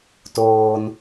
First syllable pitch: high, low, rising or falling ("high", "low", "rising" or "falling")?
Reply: low